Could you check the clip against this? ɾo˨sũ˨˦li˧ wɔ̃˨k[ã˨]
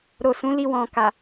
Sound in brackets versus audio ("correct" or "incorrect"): incorrect